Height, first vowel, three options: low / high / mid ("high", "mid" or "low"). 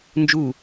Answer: high